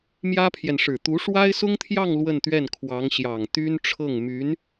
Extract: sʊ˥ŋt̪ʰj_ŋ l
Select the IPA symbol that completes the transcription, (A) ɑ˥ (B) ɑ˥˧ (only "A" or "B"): B